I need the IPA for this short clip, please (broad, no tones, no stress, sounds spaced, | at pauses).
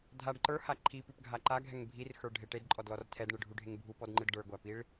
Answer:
dʱ a ɖ ǃ ə˞ h a ǃʰ i p ʉ p ɡʱ a ǃ a ɡʱ ɛ ŋ bʱ i r x ə˞ ɖʱ e ʈ e d ǃʼ ɔ d l ɔ r tʰ ɛ d ɳ ɯ ɖʱ u ɖʱ e ŋ bʱ u p ɔ d ŋ͡ǃ ɯ d ɖ ə˞ ɡʷ æ p i ɭ